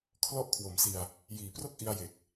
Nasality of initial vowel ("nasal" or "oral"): oral